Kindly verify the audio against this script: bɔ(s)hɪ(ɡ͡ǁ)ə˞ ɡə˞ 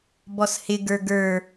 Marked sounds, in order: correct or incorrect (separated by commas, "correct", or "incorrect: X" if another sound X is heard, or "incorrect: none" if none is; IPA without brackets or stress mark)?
correct, incorrect: ɡ